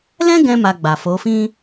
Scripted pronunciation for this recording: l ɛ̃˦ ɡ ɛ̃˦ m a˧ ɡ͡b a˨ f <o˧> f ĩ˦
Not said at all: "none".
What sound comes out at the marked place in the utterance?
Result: o˨˦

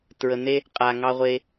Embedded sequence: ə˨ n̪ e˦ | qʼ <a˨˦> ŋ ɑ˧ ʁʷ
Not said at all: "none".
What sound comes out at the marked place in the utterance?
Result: a˨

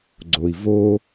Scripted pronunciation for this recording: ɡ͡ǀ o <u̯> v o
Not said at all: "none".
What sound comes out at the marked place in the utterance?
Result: i̯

